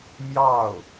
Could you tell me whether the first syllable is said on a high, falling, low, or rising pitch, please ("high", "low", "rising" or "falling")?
falling